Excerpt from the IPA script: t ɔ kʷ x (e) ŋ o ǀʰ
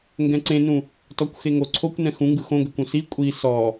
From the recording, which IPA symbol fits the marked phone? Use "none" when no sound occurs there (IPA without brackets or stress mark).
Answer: e